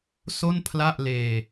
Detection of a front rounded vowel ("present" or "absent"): absent